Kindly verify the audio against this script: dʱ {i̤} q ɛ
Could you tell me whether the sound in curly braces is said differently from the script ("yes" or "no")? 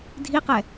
yes